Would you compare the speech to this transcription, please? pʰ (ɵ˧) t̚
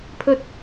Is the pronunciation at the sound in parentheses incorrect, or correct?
correct